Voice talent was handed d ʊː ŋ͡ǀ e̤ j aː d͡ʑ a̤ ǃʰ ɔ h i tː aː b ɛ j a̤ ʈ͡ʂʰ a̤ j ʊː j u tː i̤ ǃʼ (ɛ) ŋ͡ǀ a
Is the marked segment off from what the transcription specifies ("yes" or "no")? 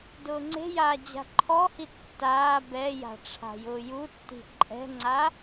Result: yes